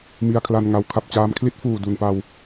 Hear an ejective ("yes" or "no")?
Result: no